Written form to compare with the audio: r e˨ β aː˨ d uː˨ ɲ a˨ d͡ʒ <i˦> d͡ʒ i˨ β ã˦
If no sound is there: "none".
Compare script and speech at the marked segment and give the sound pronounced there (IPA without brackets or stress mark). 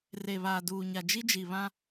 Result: i˦